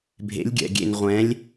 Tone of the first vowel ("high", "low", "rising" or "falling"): rising